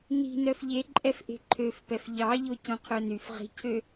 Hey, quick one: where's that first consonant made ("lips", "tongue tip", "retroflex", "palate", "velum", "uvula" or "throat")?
tongue tip